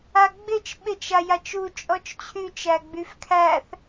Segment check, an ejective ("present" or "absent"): present